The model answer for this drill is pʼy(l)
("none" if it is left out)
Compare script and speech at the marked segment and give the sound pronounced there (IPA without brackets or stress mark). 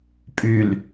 l